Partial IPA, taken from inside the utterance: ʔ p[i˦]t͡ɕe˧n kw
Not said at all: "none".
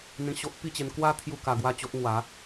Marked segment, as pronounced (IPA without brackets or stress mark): i˥˧